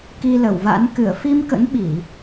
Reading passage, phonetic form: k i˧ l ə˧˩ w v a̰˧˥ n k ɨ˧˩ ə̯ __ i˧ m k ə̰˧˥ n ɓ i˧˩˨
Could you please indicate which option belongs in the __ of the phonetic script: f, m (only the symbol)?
f